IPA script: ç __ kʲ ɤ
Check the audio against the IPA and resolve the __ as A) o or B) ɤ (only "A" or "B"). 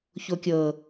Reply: A